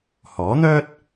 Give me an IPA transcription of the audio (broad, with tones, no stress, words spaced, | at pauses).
hɔː˨˥n̪œː˥t̚